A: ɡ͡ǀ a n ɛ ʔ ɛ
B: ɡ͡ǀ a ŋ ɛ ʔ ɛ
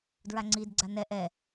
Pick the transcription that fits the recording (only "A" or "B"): A